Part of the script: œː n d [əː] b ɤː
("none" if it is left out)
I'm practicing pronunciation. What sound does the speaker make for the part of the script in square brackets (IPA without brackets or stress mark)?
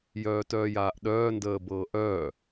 əː